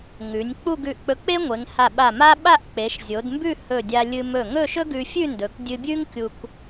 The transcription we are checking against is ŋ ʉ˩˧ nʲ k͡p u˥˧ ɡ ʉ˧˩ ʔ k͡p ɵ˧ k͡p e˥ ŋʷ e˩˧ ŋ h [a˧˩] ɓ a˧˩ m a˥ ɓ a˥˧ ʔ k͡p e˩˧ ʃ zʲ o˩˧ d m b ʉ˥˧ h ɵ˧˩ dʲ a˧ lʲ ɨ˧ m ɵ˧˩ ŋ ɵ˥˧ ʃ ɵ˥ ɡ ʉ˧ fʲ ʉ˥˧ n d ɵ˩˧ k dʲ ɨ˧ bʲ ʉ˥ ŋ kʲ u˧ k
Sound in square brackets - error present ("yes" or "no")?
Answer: no